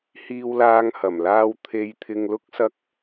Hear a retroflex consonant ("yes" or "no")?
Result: no